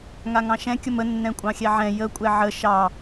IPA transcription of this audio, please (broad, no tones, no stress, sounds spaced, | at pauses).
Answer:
ŋ a ŋ ɑ̃ ʃ ɛ̃ kʲ ə m ə nː ɛ̃ kʷʼ ɑ̃ xʲ ɛ ʕ ɛ̃ j ə kʷʼ ɛ ʕ ə ʃ ɑ